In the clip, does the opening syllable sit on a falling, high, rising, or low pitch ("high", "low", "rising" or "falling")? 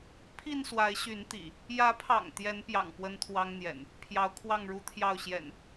falling